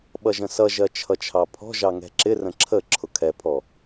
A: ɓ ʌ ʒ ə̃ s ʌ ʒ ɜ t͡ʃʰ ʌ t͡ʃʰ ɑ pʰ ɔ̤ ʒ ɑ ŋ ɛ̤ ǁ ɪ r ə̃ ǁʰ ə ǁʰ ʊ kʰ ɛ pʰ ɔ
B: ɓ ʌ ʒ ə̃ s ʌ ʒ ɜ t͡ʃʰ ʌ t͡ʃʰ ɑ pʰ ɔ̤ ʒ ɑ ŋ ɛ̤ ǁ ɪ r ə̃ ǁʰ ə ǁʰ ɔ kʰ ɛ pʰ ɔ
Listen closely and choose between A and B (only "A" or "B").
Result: A